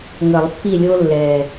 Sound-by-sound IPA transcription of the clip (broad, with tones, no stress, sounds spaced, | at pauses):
ŋ ə˨˩˦ lˠ pː i˦˨ lʲ o˦ lː ɛː˨˩